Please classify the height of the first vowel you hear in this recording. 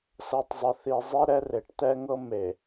mid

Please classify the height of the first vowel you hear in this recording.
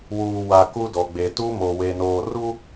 high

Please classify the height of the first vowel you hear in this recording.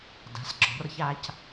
low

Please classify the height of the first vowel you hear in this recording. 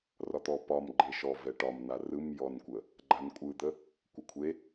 low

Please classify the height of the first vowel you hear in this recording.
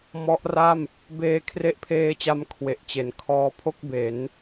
mid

